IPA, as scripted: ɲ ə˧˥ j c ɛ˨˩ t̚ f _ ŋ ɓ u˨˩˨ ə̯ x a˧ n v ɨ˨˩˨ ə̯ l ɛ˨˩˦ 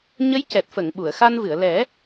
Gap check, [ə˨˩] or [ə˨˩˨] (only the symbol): ə˨˩˨